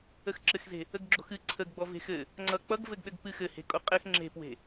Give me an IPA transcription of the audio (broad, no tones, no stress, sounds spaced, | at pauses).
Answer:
ə x ǁ ɘ x z e̤ | ə ɡ ɡ͡ǁ o̤ x ɨ ǀʰ ə ɡ ɡ͡b ɔ v e̤ x ɘ | ŋ͡ǀ ʌ k͡p ʌ ɡ v ɘ ɡ ɗ ɘ ɡ p ɨ x ɘ h e̤ kʼ o qʼ ɘ x ŋ͡ǁ e̤ p w e̤